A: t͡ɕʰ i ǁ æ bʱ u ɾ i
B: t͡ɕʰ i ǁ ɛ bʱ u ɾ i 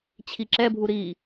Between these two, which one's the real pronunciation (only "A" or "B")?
B